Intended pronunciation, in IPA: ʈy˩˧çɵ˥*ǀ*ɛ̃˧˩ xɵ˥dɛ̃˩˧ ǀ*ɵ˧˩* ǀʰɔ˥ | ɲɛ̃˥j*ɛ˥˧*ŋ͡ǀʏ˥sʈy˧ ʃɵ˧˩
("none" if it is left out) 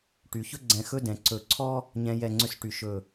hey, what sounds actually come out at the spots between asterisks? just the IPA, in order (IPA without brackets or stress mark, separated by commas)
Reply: ɡ͡ǀ, ɵ˧˩, ɛ˥˧